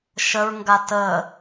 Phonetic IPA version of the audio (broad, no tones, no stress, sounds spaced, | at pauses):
ʃ ə ɹ ŋ ɡ a t ə